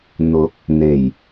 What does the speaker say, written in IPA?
n̪ʊ˨˥k̚ | n̪e˨˩j

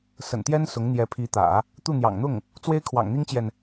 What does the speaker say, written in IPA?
sə̰˨˩nt̪jɛ˥n sʊ˧˥ŋn̪jɛ˧˥pʰi˧˥t̪ä̰˨˩˦ | t̪u˥˩n̪jɑ̰˨˩ŋn̪ʊ˥˩ŋ | t͡swe˥ɪ̯kʰwɑ̰˨˩ŋ n̪i˥ŋt͡ɕjɛ˨n

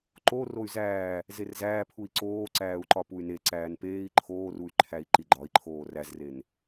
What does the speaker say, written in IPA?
ǃo roy̯zæː | zerzæː pʰui̯ǀoː ǀæːu̯ǃɒpuy̯ne ǀæːnpeːi̯ ǃʰoːruy̯ ǃʰæi̯ǃiɡ͡ǃɒi̯ǃʰoː ræzren

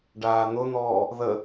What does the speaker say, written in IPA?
ɖaːn̪ʊn̪ɔː | ðə

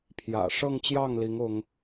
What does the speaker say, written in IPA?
pʰjä̰˨˩ʂɤ˥˧ŋt͡ɕjɑ˥˩ŋli˧˥ŋ ʊ˥ŋ

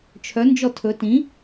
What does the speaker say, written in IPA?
t͡ʃʰœnd͡ʒɔ tʰɵ tĩ

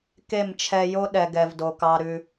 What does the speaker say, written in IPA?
ke˦˨mt͡ʃʰɛ˧jo˦ ɗɛ˨ɡ ɛ˨vdo˨kɑ˧ ɾʉ˧

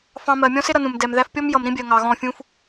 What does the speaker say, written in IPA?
fɑ̃˧mɜ˨ mʲɔ̃˦sɪ˦ɾʌ˨ nũ˨mdɛ˨m ðæ˧fpʲɔ˦m jʌ˨mɾĩ˦bʲɜ˨ ŋɑ˨ɣɔ̃˦˨fʲũ˦f

